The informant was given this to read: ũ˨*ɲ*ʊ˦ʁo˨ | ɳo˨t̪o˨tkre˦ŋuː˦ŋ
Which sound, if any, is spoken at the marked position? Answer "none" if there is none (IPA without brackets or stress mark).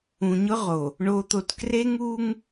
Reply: ɲ